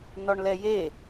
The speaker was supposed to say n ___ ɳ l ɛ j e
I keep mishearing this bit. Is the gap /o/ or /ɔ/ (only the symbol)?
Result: ɔ